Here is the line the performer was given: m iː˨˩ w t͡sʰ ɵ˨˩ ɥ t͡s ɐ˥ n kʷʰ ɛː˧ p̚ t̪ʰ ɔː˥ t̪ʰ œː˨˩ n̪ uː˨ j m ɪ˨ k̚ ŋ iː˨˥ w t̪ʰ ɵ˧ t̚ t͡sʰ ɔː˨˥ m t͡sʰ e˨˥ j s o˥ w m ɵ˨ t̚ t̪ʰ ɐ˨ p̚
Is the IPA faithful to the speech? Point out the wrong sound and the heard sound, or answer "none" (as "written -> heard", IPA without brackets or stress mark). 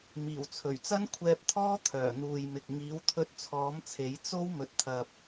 s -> t͡s